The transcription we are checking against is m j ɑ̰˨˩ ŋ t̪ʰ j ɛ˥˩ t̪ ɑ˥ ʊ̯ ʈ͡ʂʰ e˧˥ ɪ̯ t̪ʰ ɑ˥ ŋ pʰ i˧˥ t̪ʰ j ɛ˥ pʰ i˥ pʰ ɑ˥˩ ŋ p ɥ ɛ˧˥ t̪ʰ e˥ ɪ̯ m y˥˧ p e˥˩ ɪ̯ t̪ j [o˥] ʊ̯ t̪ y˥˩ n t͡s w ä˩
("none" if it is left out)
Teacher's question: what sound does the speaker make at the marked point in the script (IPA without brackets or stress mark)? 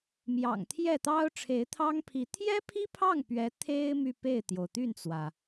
o˩